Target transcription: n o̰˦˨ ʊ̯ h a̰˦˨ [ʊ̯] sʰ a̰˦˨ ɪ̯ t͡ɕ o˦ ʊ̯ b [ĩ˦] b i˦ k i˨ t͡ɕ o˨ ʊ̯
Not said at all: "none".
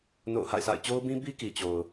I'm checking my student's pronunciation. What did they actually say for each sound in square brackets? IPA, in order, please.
ɪ̯, ĩ˦

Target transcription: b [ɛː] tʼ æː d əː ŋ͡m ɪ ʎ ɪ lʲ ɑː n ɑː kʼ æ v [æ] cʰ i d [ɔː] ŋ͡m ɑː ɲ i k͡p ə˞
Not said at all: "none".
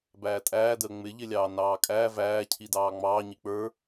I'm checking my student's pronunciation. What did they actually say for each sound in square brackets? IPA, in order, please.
æː, æː, ɑː

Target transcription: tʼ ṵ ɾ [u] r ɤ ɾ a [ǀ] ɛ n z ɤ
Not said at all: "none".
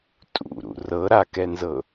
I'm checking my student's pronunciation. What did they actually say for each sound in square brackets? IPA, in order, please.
ṵ, k

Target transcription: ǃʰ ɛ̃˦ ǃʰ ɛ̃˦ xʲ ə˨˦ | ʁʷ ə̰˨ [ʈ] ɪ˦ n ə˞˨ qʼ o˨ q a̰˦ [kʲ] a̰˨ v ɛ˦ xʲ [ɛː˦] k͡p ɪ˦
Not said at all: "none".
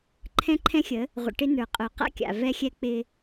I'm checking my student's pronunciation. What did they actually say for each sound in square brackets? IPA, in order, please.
ʈ, kʲ, ɛ˦

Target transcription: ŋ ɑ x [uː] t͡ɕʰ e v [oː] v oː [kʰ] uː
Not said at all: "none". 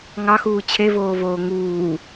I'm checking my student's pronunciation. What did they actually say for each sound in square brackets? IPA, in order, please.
uː, oː, ŋ

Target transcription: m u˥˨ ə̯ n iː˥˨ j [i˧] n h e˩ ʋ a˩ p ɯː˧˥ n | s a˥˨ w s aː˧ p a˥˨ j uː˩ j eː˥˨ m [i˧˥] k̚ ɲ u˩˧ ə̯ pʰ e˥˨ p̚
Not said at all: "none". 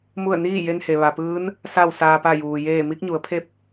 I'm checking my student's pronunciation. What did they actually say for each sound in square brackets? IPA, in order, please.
e˧, i˧˥

